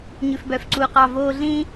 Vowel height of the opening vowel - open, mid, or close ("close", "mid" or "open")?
close